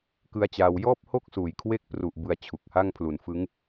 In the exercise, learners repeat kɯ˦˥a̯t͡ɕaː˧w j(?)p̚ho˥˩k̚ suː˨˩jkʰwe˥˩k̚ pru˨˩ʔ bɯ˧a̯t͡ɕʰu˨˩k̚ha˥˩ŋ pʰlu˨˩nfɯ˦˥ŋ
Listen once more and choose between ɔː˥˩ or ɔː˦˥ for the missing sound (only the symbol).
ɔː˥˩